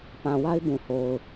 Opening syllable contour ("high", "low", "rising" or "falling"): low